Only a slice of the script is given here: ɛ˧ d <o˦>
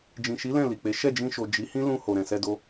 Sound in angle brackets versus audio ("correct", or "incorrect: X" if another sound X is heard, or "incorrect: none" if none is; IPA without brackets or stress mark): incorrect: o˧